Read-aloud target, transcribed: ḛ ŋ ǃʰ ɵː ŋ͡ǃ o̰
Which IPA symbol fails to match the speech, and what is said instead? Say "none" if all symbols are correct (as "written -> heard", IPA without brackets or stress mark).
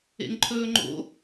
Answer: none